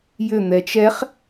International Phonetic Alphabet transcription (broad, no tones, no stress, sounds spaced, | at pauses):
j ʏ n̪ ɛ t͡ʃ ɛ χ